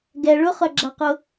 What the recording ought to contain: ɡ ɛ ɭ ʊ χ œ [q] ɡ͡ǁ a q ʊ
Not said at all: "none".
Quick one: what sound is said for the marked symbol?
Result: none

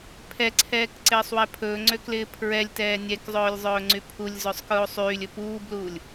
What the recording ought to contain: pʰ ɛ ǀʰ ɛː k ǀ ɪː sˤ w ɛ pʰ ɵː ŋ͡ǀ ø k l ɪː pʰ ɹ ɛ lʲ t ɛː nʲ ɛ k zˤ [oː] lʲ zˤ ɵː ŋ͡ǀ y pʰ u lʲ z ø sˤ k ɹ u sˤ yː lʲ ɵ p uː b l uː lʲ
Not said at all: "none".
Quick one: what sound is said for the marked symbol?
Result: ɵː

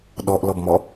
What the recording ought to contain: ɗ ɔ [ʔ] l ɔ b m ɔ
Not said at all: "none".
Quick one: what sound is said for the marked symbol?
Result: ʔ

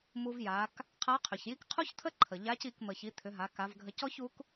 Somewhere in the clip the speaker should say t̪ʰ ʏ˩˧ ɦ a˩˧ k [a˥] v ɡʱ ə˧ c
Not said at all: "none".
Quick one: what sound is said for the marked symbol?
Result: a˩˧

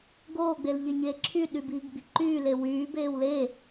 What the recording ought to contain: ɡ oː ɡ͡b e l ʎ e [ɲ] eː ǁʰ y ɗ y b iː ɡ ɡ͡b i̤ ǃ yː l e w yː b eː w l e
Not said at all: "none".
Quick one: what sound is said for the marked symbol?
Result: ɲ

